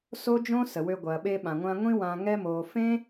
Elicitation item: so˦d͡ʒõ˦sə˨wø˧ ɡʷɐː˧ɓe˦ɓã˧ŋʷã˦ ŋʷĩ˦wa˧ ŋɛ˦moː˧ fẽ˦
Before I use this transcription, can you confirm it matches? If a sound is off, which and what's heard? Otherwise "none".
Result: a˧ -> ã˧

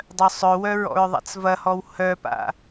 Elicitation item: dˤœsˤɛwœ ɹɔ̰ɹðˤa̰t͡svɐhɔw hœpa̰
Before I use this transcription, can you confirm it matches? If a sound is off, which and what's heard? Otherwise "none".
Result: ɛ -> œ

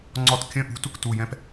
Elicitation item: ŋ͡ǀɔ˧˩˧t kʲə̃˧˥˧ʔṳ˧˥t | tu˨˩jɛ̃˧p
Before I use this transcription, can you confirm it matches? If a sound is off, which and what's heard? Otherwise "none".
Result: none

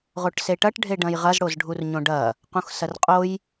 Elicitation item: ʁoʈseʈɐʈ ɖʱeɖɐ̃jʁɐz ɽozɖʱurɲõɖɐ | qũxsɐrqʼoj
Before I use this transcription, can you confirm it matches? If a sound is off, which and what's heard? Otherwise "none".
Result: none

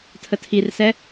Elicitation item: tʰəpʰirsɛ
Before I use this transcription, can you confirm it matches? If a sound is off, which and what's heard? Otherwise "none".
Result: pʰ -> tʰ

